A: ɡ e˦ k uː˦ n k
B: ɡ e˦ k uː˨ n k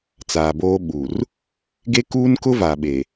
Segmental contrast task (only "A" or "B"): A